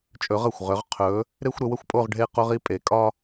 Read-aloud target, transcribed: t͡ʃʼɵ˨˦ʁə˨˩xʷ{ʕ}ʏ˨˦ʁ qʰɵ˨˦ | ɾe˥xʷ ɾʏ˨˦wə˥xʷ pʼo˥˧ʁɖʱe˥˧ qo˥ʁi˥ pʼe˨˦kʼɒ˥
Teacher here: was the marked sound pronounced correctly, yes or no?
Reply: no